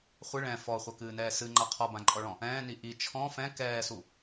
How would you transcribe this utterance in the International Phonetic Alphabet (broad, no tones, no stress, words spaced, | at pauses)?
χʷɨ ɭɛ̃ fɔχʷɐkɨːnɛː sɨŋ͡ǃa qʰɔbãǃʼɔɭɔ̃ | ɛ̃ːni ʔi t͡ʃʰɔ̃ fɛ̃ kɛːsu